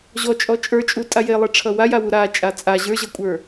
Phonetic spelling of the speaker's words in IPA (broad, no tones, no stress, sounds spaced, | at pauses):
ʑ ɔ t͡ʃʼ ɔ t͡ʃʼ ə˞ t͡ʃʼ u tʼ a j e lˠ e ʈ͡ʂʰ ʌ w a j a w u ɾ a t͡ʃʼ a t͡sʼ a ʑ ə˞ ʑ ʌ kʷʼ ə˞